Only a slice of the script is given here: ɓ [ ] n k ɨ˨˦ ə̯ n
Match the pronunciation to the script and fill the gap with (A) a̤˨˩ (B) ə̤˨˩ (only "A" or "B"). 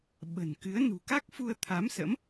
B